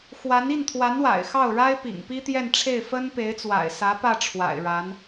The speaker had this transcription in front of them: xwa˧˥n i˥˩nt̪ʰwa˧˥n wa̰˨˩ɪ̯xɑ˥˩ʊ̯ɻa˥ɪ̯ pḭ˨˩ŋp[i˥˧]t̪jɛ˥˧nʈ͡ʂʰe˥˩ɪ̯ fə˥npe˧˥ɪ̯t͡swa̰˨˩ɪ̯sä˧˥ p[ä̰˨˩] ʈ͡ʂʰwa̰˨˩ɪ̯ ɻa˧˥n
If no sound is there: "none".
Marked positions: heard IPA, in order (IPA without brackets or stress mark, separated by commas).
i˥, ä˥˩